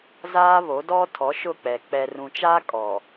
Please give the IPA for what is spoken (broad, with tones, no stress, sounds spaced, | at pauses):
z aː˦ β o˨˦ d ɔ˦ tʰ ɔ˨˦ ʃ ʊ˦˨ k͡p ɛ˨ k͡p ɛ˨ r ũ˨ t͡ʃ aː˦ kʼ ɔ˨